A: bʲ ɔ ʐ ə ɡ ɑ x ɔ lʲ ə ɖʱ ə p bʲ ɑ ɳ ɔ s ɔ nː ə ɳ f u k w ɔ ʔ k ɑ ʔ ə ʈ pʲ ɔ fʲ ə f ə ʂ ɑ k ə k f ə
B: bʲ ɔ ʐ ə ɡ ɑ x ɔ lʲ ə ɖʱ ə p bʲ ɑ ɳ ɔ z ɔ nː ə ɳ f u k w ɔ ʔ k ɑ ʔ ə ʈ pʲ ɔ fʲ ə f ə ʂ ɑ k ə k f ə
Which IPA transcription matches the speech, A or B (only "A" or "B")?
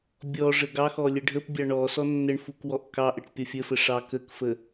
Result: A